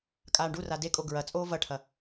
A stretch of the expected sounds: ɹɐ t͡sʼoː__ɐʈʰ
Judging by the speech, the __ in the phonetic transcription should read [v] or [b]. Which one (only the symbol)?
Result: v